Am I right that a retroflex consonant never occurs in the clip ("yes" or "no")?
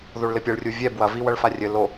no